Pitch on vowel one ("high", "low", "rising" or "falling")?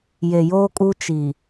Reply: low